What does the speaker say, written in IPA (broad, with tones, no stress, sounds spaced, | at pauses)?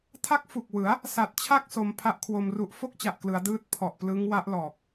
tʰ a˦˥ k̚ f u˨˩ k̚ w ɯ˩˦ a̯ | s a˨˩ t̚ t͡ɕʰ a˥˩ k̚ s o˩˦ m pʰ a˦˥ ʔ kʰ w o˧ m r u˦˥ ʔ f o˥˩ k̚ t͡ɕ a˨˩ ʔ k l ɯ˩˦ a̯ d ɯː˦˥ t̚ pʰ ɔ˨˩ ʔ p l ɯ˦˥ ŋ w a˦˥ ʔ l ɔː˨˩ k̚